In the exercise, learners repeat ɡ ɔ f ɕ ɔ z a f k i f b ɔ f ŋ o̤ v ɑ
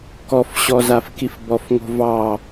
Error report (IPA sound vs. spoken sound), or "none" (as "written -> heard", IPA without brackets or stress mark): ɡ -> k